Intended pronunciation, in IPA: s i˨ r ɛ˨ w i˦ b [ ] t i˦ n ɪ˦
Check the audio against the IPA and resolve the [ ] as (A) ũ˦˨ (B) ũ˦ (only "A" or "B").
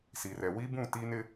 A